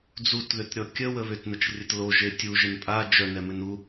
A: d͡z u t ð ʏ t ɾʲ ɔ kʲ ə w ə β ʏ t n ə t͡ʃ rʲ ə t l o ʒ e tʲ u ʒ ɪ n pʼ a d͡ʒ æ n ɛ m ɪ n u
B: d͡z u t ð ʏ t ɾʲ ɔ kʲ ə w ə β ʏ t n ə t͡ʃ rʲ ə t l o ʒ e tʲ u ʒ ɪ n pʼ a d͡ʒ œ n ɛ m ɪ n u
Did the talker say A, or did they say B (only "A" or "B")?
B